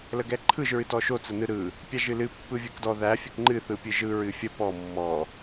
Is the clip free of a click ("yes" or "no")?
no